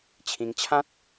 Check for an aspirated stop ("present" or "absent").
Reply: present